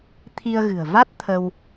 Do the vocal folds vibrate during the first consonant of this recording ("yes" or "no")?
no